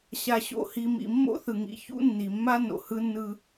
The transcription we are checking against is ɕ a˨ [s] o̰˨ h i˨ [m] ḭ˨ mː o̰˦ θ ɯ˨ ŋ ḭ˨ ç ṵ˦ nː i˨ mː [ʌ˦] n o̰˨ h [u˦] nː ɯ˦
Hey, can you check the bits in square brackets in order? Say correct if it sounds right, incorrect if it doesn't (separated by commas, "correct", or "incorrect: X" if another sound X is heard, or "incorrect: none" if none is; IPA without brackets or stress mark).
incorrect: ɕ, correct, incorrect: a˦, incorrect: ɯ˦